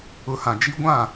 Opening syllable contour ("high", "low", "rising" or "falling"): low